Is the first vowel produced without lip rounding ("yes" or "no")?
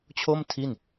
no